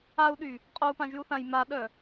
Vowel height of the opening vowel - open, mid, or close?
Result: open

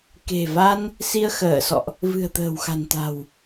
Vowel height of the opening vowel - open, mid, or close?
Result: mid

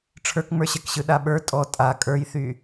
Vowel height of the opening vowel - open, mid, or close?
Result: mid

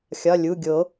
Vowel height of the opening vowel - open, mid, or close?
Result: open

